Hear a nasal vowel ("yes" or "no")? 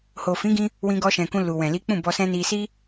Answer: yes